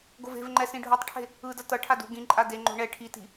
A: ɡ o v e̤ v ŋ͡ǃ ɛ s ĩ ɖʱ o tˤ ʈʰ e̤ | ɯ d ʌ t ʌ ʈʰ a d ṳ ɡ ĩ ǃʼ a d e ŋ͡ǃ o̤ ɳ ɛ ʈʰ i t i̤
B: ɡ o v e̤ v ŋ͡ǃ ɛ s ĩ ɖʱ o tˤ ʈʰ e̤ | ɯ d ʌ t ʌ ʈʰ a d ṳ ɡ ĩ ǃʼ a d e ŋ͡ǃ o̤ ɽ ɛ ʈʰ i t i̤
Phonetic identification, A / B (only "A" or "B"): A